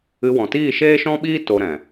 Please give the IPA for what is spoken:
ɨ˧ wɔ̃˨tiː˦˨ ʃeː˦ʃɔ̃˦ɓiː˦ to˧ɾɛ̃˨

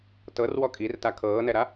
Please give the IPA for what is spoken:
tɤrwɔ kʼirta kʰɤːnɛɾa

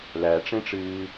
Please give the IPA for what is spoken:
læʈ͡ʂẽʈ͡ʂɨː

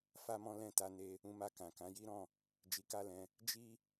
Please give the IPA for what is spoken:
fa˦mɔ̃˦ lɛ̃˦˨ta˧ ne˧ | ũ˧ma˧ kã˨kã˨˦ji˦ɾɔ̃˦˨ | d͡ʒi˧ka˦lɛ̃˧ | d͡ʒi˦

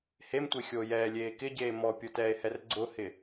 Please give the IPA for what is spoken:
hemtʷexʲoː jɛːlʲeː kɪɟeː mɔpʲotɛːe̯hɛr ɡ͡ǀʊhɪ

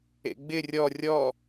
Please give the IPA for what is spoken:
ḛɡ͡bɪ rʲɔ rʲɔ

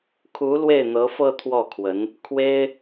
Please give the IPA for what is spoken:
kʰu˧˥ lwe˥˩ɪ̯n̪ɤ˧˥fɤ˥˧ t̪ʰwɔ˥˩kʰwə˧˥n | kʰwe˥ɪ̯

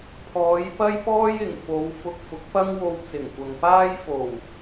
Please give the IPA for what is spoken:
pʰɔː˨˧jpɐ˥jpɔː˥j ɪ˨˩ŋ fo˨˧wfʊ˧k̚fʊ˨˥k̚ pɐ˥ŋwo˧wt͡sɪ˨˩ŋkʷɐ˨ŋ paː˥jfo˨˩w

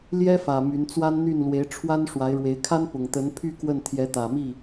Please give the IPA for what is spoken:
ljɛ˥fä˨˩ my˧˥nt͡swa˥nn̪y˥˩n lwe˧˥ɪ̯ʈ͡ʂʰwa˥n ʂwa˧˥ɪ̯ɻwe˧˥ɪ̯ kʰa˥npʊ˨˩ŋ t̪ə˧˥npʰy˥˧ kwə˥˩n t̪ʰjɛ˧˥t̪ä˨˩ mi˥˩

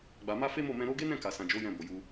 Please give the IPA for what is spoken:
ɡ͡ba˨ ma˧ fe˦mo˦˨mɛ̃˧ ɾo˧ɡe˦nɛ̃˦˨ka˨ sã˨d͡ʒo˨˦ jɛ̃˧bo˨ju˧

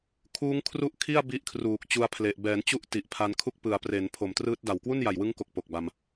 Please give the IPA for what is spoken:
kʰuː˦˥ŋkʰru˥˩ʔkʰi˥˩a̯ bi˦˥ʔkʰruː˨˩k̚t͡ɕu˧a̯pʰle˨˩ʔ bɛː˩˦nt͡ɕu˦˥ʔ ti˨˩ʔpʰa˧nkʰu˥˩k̚ pɯ˩˦a̯pre˩˦n pʰo˨˩mtrɯː˦˥t̚da˨˩w kwu˥˩nja˨˩jwɯ˦˥ŋko˨˩k̚ po˨˩k̚ba˧m

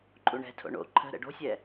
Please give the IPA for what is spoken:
ǃʼuɳɛ̤tʰo̰ ɳo̰ ǃʰə̤ ɾə̰ɖo̤sʲɛ

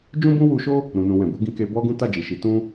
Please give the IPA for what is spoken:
d͡ʒũ˦bũ˦wu˧ʃo˦ | ɾũ˧nũ˧ wɛ̃˨bu˨˦ɡĩ˧ ke˧ bɔ˦ɡũ˦ ta˦˨d͡ʒi˨ʃi˨˦ tũ˦

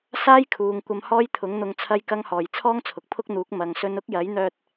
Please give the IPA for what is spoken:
saː˥jkʰuː˨˧ŋ kʷɐ˧mhɔː˥jt̪ʰʊ˨˥ŋn̪ʊ˧ŋ t͡sʰɐ˥jkɐ˥ŋhɔː˨j t͡sʰɔː˥ŋt͡sʰʊ˨k̚pʰʊ˥k̚n̪uː˨˥k̚ mɐ˨˧ŋ sɵ˧nʊ˥k̚jɐ˨˥jn̪œː˧t̚

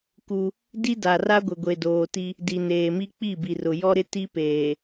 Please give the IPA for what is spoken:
ku˦ | di˦da˨ra˦ɡʷɪ˨ ɡʷe˨doː˨ti˦ | di˨neː˨mi˦ k͡pi˦˨bi˨rʊ˨jɔ˦ ɾɪ˦ti˦peː˨

